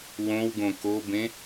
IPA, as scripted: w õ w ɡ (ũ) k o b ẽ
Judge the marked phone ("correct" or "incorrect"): incorrect